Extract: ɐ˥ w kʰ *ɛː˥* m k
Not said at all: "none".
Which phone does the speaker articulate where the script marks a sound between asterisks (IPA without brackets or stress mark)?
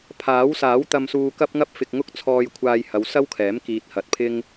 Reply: ɛː˨˥